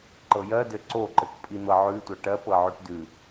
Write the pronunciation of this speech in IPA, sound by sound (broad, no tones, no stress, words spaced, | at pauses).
ǃɤjɜdɘ ǀoǃɘk pʼin̪ɤʕʉtʷɤ ʈɜp ɤʕʉʈdʉ